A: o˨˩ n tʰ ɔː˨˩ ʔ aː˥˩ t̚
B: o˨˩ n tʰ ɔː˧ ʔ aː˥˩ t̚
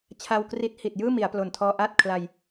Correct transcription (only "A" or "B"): B